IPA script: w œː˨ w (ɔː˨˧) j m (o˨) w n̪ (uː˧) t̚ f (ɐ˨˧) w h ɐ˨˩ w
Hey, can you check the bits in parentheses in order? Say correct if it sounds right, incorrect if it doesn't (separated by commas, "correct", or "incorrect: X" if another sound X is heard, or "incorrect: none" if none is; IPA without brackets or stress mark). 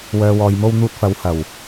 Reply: incorrect: ɔː˨, incorrect: o˧, correct, correct